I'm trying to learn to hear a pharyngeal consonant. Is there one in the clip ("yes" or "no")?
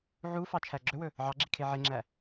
yes